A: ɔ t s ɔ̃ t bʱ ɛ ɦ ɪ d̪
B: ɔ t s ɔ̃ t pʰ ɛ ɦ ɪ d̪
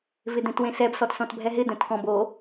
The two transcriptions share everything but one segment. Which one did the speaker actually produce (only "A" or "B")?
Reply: A